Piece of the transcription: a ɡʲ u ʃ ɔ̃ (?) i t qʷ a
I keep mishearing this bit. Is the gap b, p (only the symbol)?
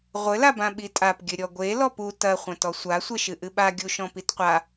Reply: p